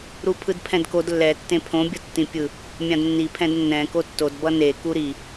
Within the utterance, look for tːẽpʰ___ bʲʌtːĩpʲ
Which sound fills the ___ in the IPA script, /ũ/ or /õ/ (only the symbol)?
õ